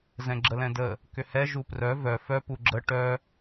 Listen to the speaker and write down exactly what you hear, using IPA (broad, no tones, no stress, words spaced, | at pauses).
zɛ̃ɡ͡ǁəlɛ̃də | kʏhɛ ʒuprœ vœ fœ puɡ͡ǁə ʈœ